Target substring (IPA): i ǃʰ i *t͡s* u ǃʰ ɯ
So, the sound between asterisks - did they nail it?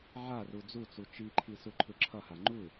no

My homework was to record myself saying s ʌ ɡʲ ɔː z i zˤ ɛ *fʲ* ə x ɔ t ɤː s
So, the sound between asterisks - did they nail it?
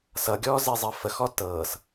no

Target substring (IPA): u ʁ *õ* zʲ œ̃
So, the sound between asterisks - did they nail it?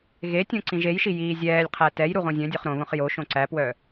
yes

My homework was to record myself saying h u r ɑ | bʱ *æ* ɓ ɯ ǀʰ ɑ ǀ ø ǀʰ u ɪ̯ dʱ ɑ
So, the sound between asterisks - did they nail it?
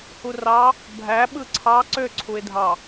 yes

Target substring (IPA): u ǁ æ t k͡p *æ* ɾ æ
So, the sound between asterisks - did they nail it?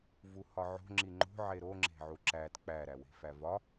yes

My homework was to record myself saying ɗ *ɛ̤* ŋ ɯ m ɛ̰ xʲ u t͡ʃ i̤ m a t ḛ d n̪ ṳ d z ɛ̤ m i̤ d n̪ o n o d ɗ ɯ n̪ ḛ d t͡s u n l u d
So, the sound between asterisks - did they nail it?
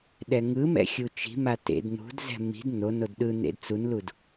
no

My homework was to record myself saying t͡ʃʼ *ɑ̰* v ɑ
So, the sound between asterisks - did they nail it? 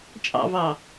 yes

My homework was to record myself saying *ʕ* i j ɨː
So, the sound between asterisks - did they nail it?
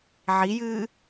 yes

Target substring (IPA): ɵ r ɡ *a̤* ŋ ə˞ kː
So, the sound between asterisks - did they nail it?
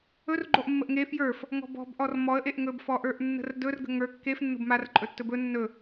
no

